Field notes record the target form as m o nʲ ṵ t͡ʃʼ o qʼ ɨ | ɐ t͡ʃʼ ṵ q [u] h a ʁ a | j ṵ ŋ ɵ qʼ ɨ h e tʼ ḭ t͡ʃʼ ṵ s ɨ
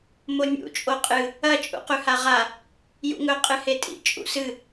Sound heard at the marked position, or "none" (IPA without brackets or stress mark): ʉ